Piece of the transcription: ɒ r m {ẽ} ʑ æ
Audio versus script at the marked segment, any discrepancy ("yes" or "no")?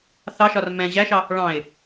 yes